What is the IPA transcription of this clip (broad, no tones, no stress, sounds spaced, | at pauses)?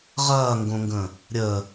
ʁ ɐː ŋ ɡ õ ŋ ɡ ə̃ | ɾʲ ə